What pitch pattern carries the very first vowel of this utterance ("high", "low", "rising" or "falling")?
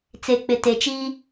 low